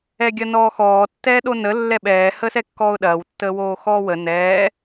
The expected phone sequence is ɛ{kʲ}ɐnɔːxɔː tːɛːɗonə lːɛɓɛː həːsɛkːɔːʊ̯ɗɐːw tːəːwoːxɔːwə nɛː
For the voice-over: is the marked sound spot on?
no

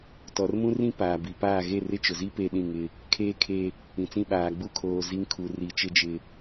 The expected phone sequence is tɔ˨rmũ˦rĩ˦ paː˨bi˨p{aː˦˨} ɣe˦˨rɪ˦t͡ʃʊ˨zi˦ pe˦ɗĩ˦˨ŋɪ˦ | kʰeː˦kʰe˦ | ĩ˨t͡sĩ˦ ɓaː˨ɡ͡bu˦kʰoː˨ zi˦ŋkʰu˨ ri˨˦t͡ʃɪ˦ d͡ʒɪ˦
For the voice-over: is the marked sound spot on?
yes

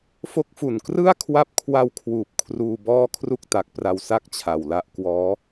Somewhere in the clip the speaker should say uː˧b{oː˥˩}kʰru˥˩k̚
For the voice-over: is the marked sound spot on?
no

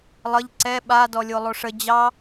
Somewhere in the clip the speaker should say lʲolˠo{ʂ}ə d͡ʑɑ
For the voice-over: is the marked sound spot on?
yes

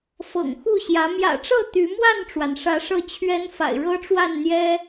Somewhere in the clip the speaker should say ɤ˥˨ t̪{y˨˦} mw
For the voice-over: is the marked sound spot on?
yes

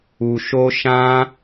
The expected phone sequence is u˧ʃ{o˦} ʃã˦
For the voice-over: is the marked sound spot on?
yes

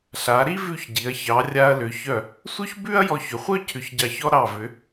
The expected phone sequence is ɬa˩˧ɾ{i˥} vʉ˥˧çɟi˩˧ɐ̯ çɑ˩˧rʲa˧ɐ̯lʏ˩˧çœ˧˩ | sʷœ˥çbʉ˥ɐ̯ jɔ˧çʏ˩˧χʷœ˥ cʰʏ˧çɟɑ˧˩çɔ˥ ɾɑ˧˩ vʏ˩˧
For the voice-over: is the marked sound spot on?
yes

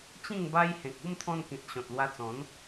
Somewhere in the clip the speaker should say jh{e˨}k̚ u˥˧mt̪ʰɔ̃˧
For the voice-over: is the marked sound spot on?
no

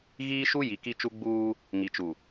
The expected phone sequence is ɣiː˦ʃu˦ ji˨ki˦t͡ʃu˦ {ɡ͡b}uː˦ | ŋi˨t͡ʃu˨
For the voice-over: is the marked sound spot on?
yes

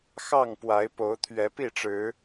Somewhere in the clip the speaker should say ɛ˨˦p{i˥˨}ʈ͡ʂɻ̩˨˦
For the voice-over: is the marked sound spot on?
yes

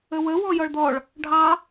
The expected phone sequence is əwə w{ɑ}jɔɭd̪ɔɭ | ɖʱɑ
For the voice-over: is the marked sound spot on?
no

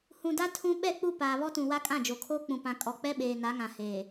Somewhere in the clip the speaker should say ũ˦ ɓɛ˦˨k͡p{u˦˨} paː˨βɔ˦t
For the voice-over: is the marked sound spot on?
yes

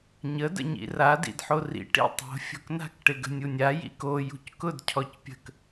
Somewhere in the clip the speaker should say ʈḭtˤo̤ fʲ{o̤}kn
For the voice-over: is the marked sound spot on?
yes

